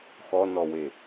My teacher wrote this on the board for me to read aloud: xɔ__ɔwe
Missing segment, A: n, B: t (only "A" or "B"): A